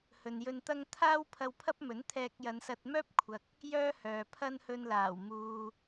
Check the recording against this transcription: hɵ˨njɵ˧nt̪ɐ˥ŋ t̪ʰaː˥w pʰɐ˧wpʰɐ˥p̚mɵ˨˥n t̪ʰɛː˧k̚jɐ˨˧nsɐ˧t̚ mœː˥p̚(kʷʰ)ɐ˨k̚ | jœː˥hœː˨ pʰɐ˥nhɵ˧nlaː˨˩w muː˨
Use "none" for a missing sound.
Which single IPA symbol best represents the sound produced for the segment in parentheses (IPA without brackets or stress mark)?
kʷʰ